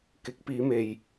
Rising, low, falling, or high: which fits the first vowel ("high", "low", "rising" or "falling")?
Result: rising